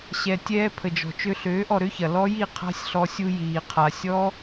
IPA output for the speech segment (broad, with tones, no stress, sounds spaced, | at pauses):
ɕ ɛ˨ tʲ ɛː˧ pʰ ə˨ d͡ʒ ɔ̤˨ t͡ʃ ø˧ ɬ øː˨˦ ʔ ɔ˨ ɾ ø˦ ç ɐ˨ l ɔ˦ j i˦˨ qʰ a̤˦ sʲ ɬ ɔ˧ sʲ u˧ j iː˨ qʰ a˨ sʲ ɔ˦